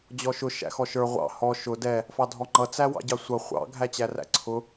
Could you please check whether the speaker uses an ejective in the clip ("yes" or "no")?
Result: no